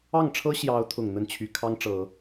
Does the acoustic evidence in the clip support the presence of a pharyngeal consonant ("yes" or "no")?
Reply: no